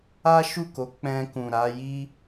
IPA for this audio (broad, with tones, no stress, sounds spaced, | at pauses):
a˦ ʃ u˦˨ k o˨˦ k͡p ɛ̃˧ k ũ˨ ɾ a˨˦ j i˦